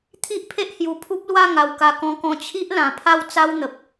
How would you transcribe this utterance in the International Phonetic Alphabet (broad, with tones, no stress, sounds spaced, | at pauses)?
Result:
t̪ʰ i˦ ʔ pʰ e˦ ʔ h j u˧ pʰ u˦ p̚ l w a˥˧ ŋ a˧ w k a˧ k ɔ̃˧ k ɔ̃˧ t͡ɕʰ i˦ ʔ l ã˧ pʰ a˥˧ w t͡s a˦ w n̪ ə˨ p̚